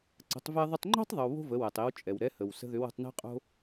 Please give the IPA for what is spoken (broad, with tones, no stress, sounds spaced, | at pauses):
ǀ ə̤˩˧ tˤ v ɛ˧ ðˤ ʏ˧ tˤ ŋ͡ǃ o̤˥ tˤ ðˤ ʏ˧ w β o̤˥ v ə˩˧ w ɛ˩ tˤ i˩˧ w t͡ʃʼ ɛ˩ w ɾ ɛ˧˥ h ə˩ w s ə̤˥ ð ʏ˧˥ w ə̤˩˧ tˤ n e̤˥ qʼ o̤˥